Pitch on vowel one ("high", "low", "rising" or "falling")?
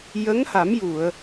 rising